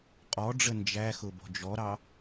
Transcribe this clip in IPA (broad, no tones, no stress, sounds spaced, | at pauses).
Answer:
qʼ ɔ ɖ͡ʐ ə n d͡ʒ æ x ʊ b ɔ̤ d͡ʒ ɔ ɾ ɑ